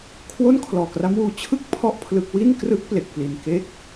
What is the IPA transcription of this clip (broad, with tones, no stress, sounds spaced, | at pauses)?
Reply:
kʰ w o˥˩ n kʰ l ɔː˨˩ k r a˦˥ m w uː˧ t͡ɕʰ ɯ˥˩ k̚ pʰ ɔ˦˥ ʔ pʰ l ɯ˦˥ k̚ w i˥˩ n k r ɯ˦˥ k̚ p l e˨˩ k̚ p l i˨˩ n k e˥˩ k̚